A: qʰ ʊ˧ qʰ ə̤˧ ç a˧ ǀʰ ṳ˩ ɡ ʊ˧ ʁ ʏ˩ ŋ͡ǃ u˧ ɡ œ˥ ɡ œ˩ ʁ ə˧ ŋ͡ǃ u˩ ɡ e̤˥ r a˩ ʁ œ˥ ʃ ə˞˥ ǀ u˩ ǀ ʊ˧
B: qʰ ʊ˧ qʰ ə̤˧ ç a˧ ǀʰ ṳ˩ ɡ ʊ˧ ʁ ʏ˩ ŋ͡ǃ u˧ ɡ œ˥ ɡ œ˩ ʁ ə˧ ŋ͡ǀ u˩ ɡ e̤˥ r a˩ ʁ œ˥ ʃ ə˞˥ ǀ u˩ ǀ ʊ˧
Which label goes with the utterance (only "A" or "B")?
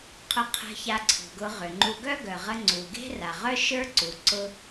B